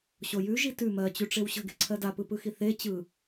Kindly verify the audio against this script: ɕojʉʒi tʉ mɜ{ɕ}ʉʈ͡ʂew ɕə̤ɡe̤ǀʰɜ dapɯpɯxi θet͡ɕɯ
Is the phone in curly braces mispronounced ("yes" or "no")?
yes